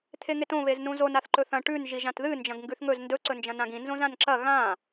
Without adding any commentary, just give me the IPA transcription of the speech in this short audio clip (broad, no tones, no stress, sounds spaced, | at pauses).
t̪ʰ e ŋ e t õ β e z n ũ z o n a θ ǃ ɵ θ ɐ̃ ʈ ʉ n ʒ i ʒ ã t ð ɨ n d͡ʒ ɐ̃ ɡ ŋ ɡ ʉ θ ŋ ɵ z n d ɵ ǀ ɵ n d͡ʒ ɐ̃ n ã ɡ ĩ n z õ z ã n ǁ ɐ ɣ ã